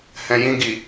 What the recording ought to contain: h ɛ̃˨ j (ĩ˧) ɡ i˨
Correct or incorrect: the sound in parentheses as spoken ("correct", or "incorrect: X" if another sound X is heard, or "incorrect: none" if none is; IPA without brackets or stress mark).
correct